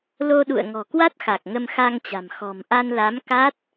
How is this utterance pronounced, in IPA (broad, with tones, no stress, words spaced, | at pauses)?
lo˧ɗṵ˧˨ə̯ ŋɔ̤˨˩kwa˦˥t̚xa˨˩k̚ ŋə˧mxa˧ŋt͡ɕa̤˨˩m xɔ̤˨˩mʔa˧nla˨˦m ka˦˥t̚